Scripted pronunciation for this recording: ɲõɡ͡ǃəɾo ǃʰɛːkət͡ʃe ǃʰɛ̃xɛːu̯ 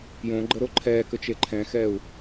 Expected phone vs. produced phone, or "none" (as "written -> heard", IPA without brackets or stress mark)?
ɲ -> j